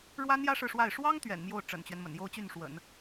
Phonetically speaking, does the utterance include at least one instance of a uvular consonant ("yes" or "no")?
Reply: no